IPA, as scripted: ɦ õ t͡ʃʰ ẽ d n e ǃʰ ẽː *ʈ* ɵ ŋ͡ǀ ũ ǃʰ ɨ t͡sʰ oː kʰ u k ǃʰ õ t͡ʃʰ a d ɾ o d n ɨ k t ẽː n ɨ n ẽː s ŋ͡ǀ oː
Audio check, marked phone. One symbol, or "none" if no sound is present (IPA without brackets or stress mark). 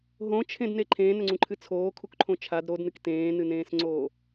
n